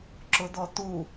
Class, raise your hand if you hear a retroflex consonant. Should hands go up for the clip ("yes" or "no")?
no